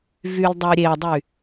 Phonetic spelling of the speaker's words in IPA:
vyldˤœɾʲedˤy

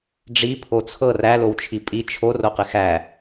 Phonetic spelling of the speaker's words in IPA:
ɖ͡ʐi pʰot͡sʰɤ ræ lowt͡ʃʰipʼi t͡ʃʰo roqɪxæ

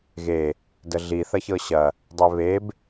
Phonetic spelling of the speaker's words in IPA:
ɣe | dəɮi θɐçɤɕɐ | dˤeβeb

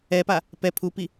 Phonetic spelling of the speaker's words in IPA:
ɛpa | pɛ pʰupi

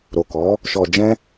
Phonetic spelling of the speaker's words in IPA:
ɾo˨kɔ˨˦ | ʃɔ˨d͡ʒɛ̃˧

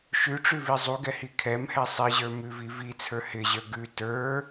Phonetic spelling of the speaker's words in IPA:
ʃʉʈ͡ʂʉvi zˤuɡɛhi kʰɛmhɛ sˤiʑə˞ mʉvi vit͡sʰə˞ hɪʑə˞ ɡʉ tə˞

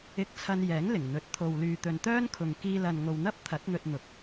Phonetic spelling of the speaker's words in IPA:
ɪ˧k̚t͡sʰɐ˧njɛː˨˥ŋ lɪ˨˩ŋn̪ɵ˨˥t̚ t̪ʰo˨wlyː˨ t̪ɵ˨nt̪œː˥nkʰʊ˨ŋ kiː˧lɐ˨nŋo˨wn̪ɐ˥p̚ t̪ʰɐ˨˥t̚n̪ɵ˧t̚n̪ʊ˨k̚

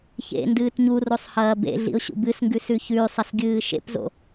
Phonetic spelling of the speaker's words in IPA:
çḛ ndɨːtɲurosˤ hɐːbḛɮḭʊ̯ ɕṵbɨsŋɡʉ sʉçʉsˤɐs ɡʲɨːʃḛpzo̰

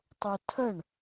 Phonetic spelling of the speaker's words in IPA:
tˤutʰəɳ

